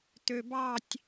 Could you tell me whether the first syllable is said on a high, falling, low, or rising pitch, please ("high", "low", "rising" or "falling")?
low